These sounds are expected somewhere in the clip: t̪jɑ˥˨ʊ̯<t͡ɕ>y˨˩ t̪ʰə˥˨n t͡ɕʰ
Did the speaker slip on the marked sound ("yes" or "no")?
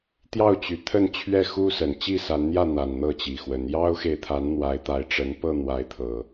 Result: no